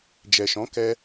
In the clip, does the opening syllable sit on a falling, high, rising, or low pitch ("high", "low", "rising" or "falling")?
low